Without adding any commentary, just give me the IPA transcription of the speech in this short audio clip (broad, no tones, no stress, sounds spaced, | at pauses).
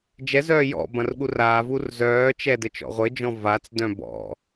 d͡ʒ ɛ z œː j ɔ̰ b ɐ̃ r ɠ u r aː v u r z œː t͡ʃ ɛ d ɘ t͡ʃ ɔ̰ ʁʷ ɘ d͡ʒ ɔ̃ v a t͡s d œ̃ b ɔ̰